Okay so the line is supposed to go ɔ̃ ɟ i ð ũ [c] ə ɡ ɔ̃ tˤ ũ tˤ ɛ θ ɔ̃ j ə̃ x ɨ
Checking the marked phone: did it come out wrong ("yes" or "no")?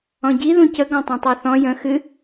no